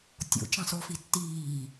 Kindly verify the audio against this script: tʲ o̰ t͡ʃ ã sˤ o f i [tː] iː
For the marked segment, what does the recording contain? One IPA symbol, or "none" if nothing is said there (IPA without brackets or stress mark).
tː